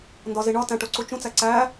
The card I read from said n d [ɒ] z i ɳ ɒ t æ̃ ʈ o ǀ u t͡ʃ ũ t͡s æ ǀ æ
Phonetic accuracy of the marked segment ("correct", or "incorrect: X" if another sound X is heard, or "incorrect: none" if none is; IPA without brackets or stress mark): correct